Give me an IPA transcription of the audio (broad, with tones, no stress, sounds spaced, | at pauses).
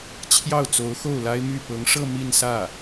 t͡ɕʰ j ɑ˥˩ ʊ̯ t͡s o˧˥ ʊ̯ x o˥˩ ʊ̯ l a˥ ɪ̯ m y˥˩ p ɤ˧˥ ŋ ʂ ɤ˥˧ m i˥˧ n s ä˥˩